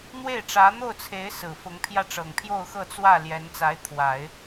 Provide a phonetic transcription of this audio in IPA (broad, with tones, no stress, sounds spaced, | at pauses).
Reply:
n̪ w e˥˩ ɪ̯ ʈ͡ʂ ä˧˥ n̪ o˥˩ ʊ̯ t͡sʰ e˧˥ ɪ̯ s ɹ̩˨˩ f ʊ˧˥ ŋ pʰ j ä˥˩ ʈ͡ʂ ɤ˨˩ ŋ pʰ j o˥˧ ʊ̯ x ɤ˥˧ t͡s w ä˥˩ l j ɛ˧˥ n t͡s a˧˥ ɪ̯ t̪ʰ w a˨˩˦ ɪ̯